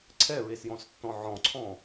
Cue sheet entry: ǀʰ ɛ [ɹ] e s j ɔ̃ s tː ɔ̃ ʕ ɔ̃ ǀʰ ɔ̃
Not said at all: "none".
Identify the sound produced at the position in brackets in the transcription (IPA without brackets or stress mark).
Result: ɹ